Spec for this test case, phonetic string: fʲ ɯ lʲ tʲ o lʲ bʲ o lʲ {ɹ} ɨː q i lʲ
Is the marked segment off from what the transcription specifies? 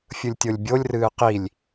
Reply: yes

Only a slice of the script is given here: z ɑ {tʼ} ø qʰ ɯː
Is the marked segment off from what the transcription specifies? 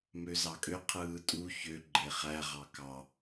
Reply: yes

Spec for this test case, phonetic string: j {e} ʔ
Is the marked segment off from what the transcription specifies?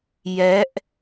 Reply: yes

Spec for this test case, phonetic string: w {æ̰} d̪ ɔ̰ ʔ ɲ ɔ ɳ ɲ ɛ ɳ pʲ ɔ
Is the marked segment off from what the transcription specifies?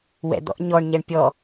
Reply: yes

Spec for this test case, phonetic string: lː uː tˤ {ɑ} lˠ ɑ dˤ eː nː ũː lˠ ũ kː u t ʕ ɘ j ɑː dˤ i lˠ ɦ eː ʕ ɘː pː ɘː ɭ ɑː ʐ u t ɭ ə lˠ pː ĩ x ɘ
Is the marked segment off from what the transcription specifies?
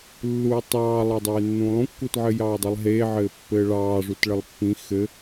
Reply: yes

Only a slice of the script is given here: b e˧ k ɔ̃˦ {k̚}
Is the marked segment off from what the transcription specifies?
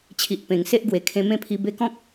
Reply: no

